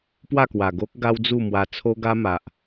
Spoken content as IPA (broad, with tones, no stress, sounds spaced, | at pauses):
p w a˥˧ k w a˨˩ ɡ o˦ k̚ ɡ a˦ w d͡z u˥˧ m w a˧ t͡sʰ o˦ ɡ a˦ m a˨ ʔ